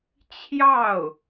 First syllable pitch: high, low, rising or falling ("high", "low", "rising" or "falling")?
falling